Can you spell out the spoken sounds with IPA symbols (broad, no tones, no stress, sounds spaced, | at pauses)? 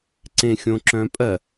ǀ ẽ xʲ õ ǁ œ̃ pʼ ɜ